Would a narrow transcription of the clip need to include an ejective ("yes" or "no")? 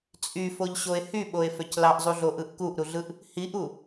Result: yes